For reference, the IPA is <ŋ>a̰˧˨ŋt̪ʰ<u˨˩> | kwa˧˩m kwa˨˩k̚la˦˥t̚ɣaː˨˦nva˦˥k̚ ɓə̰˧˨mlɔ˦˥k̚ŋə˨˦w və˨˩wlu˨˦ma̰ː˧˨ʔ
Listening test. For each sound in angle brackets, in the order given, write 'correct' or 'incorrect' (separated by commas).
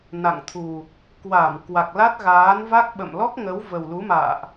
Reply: incorrect, correct